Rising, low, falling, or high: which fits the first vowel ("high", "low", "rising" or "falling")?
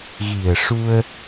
low